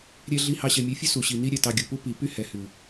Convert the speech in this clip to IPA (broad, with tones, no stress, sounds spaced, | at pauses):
ɾʲ ɛ˧ ɮ i˧ h ɑ˧ ɕ ɛ˨ mʲ ɛ˨˦ fʲ ʉ˦ s u˨ ɕ i˨ n i˦ ɾʲ ɛ˨ t ɑ˧ ɡʲ u˨ p u˦ p i˨ p y˦ h ɛ˨ h ʉ˨